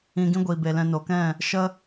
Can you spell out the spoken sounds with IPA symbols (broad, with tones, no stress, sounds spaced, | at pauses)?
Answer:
ĩ˧ ɡ ĩ˦ ɡʷ iː˨ b e˨ l ɛ̃˧ n o˨ k ɛ̃˦˨ | ʃ ə˦